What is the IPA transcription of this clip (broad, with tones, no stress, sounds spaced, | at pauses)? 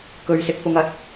k ɵ˨ ɥ s ɪ˨ k̚ p ʊ˨ ŋ ɐ˨ t̚